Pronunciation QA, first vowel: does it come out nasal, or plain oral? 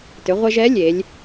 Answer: oral